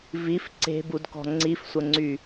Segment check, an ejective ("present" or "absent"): absent